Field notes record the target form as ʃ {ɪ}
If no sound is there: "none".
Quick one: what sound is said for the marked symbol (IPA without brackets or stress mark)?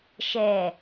ɛ